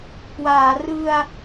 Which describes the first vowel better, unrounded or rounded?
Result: unrounded